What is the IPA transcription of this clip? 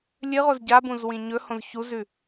lʲ ɨ ʁ o z ɟ a b ũ z w ĩ ɲ ɵ h õ z ç u z ʉ

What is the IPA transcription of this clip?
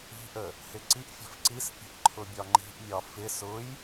i̤ ʔ ə | h ɪ ǀ i ʔ fʲ ə̤ f ǀ i s pʲ ə̤ ʔ ǃʰ ʊ bʲ ɒ ŋ͡ǃ i̤ ʔ mʲ ɒ f ɪ s ʊ j

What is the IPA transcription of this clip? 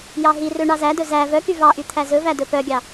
j ɑ ɦ i r ø ɳ ɑ z æ d ɵ z æ v œ k y v ɑ ʔ y t̪ʰ æ z ɵ v æ d ɵ p œ ɡʲ ɑ

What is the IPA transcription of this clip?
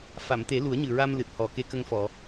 f a˨˩˨ m t̪ e˨˩˦ l u˨˩˦ ə̯ ɲ ɨ˨˩ ɹ a˧ m l ɨ˨˩ t̚ h ɔ˨˩ k e˧ k ə˧ ŋ f ɔ˨˩˨

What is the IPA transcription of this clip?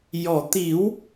j ɔ˨˩˨ t̪ i˨˩˦ w

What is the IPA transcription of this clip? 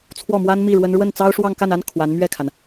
t͡sʰ w ɔ˥˩ m w a˥ n m i˥˩ ɻ w ə˥ n ɻ w ə˥˩ n t͡s ɑ˥ ʊ̯ ʂ w ɑ˥˧ ŋ k a˥˩ n a˥ n kʰ w a˧˥ n m ɥ ɛ˥˩ kʰ a˩ n

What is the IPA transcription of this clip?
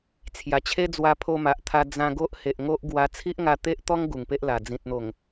t͡sʰ j a˨˩ t͡ɕʰ e˦ d͡z w a˧ pʰ o˧ m a˨ ʔ t̪ʰ a˧ d͡z ã˧ ɡ o˦ ʔ h e˨ ʔ ŋ o˦ ʔ ɡ w a˧ t͡sʰ i˦ ʔ ŋ a˧ t̪ e˦ ʔ t̪ ɔ˦ ŋ ɡ u˨˩ ŋ p e˦ ʔ l a˨˩ d͡z ĩ˨ t̚ n̪ o˨˩ ŋ

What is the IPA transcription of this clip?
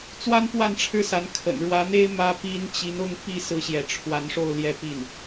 t͡s w a˥ n p w a˥˧ n ʈ͡ʂʰ ɻ̩˥˩ s a˧˥ n kʰ ə̰˨˩ n ɻ w ä˧˥ n̪ e˥ ɪ̯ m ä˥ p i˥ n t͡ɕ i˧˥ n ʊ˥˧ ŋ p i˥˩ s ɹ̩˥ ɕ j ɛ˧˥ ʈ͡ʂʰ w a˧˥ n ʂ o˥˩ ʊ̯ l j ɛ˥ p i˥˩ n

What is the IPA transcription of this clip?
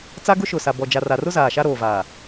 t͡s a˦ ɡ ʊ˦ ʃ ʊ˨ s a˨ b ɔ˨ d͡ʒ a˨ r a˨ r ʊ˦ z aː˨ ʃ a˦ ɾ oː˨ v aː˨

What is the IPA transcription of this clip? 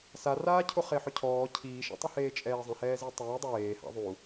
s a r aː cʰ ʊ χ e ħ ʊ cʰ ɔː cʰ iː ʃ ḛ tˤ ɪ h eː t͡ʃʼ ɛː zˤ ɛ̃ h ɛː z i tˤ eː dˤ ɪ w eː h a̰ ðˤ u

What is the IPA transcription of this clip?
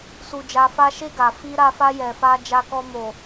s u˧ d͡ʒ a˧ f a˦ ʃ e˧ ɡ a˨ f i˧ ɾ a˧ f a˧ j ɛ˨ f a˧ d͡ʒ a˧ k ɔ˧ m o˨

